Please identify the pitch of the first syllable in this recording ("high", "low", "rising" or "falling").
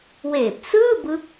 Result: low